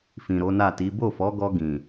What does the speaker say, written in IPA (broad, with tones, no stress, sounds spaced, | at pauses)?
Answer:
f ĩ˨ ɾ o˨˦ n a˦˨ t i˨˦ b o˦˨ f ɔ˨˦ ɡ ɔ˧ ɡ ĩ˨